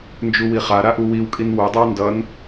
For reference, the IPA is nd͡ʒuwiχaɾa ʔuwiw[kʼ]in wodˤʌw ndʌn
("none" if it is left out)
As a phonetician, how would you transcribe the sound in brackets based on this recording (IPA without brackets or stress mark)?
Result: kʼ